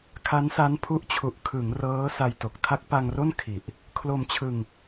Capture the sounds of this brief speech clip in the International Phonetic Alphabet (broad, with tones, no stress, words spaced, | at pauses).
kʰa˦˥nsa˦˥npʰu˦˥ʔt͡ɕʰu˨˩ʔ kʰɯ˩˦ŋ rɤː˦˥ sa˧jto˨˩k̚ tʰa˦˥k̚pa˧ŋro˥˩n kʰi˨˩ʔ | kʰlo˧mt͡ɕʰɯ˧ŋ